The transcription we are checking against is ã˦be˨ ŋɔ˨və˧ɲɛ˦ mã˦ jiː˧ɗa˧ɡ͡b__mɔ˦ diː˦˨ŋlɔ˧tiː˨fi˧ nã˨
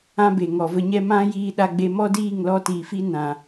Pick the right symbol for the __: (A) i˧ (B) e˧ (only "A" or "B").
B